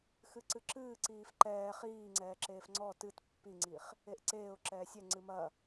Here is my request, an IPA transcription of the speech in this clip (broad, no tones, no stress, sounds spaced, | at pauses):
x ɨ ǀ ɨ ǁ ɨː ǀ iː f ǃ ɛː χ iː ŋ͡ǀ ɛː ǁ eː f ŋ͡ǀ ɔ t ɨ t pː i ŋ͡ǀ i χ | e ʔ ǀ eː ʊ̯ ǁ ɛː sʲ ɛ ŋ͡ǀ ɨ m ɐ